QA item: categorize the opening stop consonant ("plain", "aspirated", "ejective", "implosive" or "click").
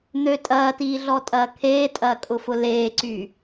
ejective